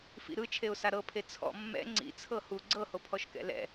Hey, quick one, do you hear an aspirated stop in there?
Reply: yes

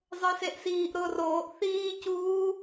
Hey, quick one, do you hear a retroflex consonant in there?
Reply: no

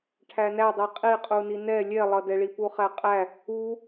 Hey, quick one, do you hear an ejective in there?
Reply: yes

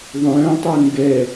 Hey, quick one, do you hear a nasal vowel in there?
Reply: yes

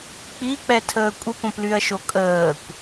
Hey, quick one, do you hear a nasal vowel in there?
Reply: yes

